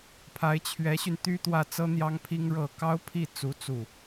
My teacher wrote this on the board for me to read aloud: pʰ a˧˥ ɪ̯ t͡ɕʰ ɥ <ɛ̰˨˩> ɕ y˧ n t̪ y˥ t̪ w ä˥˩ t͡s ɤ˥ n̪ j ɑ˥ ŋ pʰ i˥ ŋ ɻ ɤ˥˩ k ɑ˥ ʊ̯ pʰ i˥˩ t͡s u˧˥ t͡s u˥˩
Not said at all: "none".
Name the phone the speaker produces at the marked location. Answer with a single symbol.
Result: ɛ˧˥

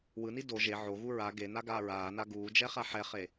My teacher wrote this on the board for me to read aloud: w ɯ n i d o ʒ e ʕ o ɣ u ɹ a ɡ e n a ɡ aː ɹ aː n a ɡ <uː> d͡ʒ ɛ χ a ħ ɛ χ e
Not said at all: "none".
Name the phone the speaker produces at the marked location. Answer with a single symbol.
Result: uː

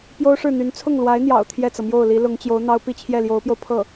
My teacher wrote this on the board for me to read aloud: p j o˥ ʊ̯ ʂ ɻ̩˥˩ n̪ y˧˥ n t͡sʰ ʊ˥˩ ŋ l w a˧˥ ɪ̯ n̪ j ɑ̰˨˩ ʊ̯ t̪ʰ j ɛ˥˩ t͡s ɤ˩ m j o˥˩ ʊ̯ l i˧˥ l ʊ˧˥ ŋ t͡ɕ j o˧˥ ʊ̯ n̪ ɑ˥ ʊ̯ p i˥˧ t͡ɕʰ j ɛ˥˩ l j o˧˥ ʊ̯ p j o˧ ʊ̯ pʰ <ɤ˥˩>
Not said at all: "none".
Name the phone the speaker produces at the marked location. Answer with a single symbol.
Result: ɤ˥˩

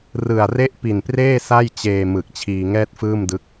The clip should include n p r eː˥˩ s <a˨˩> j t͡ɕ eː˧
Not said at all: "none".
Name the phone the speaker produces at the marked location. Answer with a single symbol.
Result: a˥˩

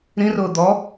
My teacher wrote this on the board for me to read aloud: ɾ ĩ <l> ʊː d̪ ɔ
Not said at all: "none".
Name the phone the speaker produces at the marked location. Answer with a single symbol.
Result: r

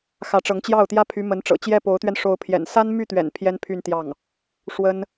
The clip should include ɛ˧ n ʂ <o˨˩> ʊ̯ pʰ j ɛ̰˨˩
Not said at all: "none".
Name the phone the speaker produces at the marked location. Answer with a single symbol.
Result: o˧˥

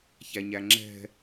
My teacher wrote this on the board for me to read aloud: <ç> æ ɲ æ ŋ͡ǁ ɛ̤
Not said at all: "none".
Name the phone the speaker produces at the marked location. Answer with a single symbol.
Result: ç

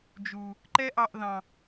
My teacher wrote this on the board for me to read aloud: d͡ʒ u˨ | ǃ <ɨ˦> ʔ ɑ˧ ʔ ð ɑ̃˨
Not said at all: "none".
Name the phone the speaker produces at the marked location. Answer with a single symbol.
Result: ɛ˦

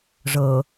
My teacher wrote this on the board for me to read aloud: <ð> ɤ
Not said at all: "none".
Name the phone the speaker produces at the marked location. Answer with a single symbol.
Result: ʐ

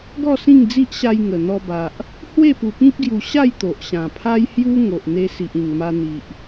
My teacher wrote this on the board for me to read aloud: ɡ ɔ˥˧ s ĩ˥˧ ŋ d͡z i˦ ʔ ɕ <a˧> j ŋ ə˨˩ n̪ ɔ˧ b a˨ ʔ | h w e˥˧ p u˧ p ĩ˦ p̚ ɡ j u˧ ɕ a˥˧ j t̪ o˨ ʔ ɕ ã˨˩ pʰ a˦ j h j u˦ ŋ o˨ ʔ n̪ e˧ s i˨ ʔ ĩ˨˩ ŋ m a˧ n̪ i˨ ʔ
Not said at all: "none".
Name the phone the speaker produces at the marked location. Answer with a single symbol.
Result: a˧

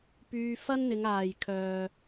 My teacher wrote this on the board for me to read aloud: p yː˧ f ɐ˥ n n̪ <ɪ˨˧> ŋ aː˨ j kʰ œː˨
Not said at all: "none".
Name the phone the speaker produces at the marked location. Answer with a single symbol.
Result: ɪ˨˧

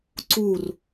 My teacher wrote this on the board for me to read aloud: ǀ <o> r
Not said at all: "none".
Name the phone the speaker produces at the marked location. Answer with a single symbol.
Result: u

